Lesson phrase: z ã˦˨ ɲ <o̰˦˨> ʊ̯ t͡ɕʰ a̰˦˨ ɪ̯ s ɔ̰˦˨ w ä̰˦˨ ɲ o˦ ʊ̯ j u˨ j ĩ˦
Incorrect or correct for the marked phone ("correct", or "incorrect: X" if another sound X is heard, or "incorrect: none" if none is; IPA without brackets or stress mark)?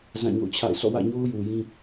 correct